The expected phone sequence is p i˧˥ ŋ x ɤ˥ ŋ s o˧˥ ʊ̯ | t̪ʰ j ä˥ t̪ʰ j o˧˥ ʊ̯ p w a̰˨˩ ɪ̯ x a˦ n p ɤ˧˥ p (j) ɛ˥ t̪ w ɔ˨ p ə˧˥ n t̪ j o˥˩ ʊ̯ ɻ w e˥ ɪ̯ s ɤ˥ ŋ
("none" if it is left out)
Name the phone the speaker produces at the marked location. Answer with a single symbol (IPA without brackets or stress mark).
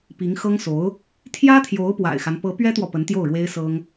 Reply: ɥ